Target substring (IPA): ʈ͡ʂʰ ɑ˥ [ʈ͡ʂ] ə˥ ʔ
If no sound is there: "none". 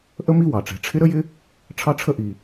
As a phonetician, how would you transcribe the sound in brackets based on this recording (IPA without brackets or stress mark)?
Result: ʈ͡ʂʰ